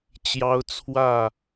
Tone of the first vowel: high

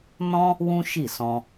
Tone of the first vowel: high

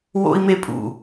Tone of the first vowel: high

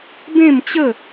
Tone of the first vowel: falling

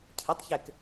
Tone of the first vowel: rising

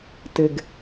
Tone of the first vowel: low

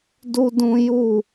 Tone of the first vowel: high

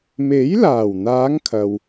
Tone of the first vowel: rising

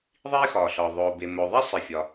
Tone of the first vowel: high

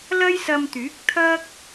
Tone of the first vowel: high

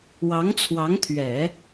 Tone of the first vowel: rising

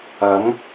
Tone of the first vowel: rising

